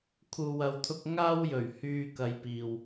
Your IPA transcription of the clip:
kʰ uː˨ w ɐ˨ w t̪ʰ ʊ˧ k̚ ŋ aː˥ w j ɵ˨˩ ɥ h yː˧ k ɐ˨˧ j p iː˨ w

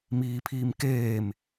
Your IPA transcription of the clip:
m iː pʰ iː m k eː m

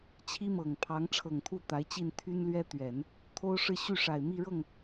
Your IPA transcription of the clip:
t͡ɕʰ i˥ m ɤ˨˩ ŋ pʰ ɑ˧˥ ŋ ʈ͡ʂʰ ɤ˨˩ ŋ t̪ʰ u˥˩ t̪ a˧˥ ɪ̯ t͡ɕ i˥˩ n t̪ʰ y˥ n l ɥ ɛ˥ t̪ ɥ ɛ˨˩˦ n | t̪ʰ o˥ ʊ̯ ʂ ɻ̩˥˧ ɕ y˥˩ ʂ a˨˩ ɪ̯ m i˥˧ ɻ ɤ˥˩ ŋ

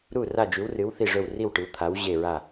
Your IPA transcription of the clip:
ɾ u˧˩ r a˧˩ d͡ʒ ʉ˩˧ w r ɨ˩˧ w θ i˧˩ ʐ ɵ˧˩ w r i˧˩ w ʈ ɨ˩˧ w t̪ʰ a˩˧ w ʑ e˧˩ ɹ a˧˩

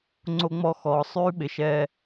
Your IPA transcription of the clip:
ŋ͡ǀ o˦ ŋ͡m ɔ˦ x ɔː˧ sˤ ʉː˦ ɓ ɪ˧ ʃ ɛː˦

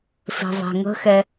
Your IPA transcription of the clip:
f e̤ zˤ e̤ ŋ ə̤ x ɛ

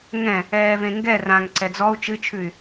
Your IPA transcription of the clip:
ŋ ɛ̃ | ɛː v ẽ ŋ ɡ ɛ r ã ŋ ǀ ɛ d͡z ɔ u̯ t͡ʃ ɨ t͡ʃʰ ʉ y̯

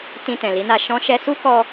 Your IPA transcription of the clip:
t ĩ˧ t ɛ̃˨ l i˨˦ n a˧ ʃ ɔ̃˦ ʃ ɛ˦ s u˦ k ɔ˧

